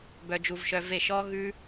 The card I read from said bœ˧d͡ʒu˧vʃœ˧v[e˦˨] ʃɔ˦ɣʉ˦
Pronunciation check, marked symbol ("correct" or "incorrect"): correct